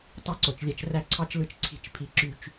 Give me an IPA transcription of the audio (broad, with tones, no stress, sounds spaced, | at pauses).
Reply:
tˤ i˦˨ ǀ o˨ t͡ʃ lʲ æ˦ t͡ʃ r æ˦ ǀʰ ɑ˦ t͡ʃ l ɯ˦ t͡ʃ ǀʰ i̤˨ t͡ʃ pʰ i˦ ǁ y˦ t͡ʃ